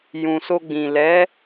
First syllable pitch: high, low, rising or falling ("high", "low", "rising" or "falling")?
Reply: low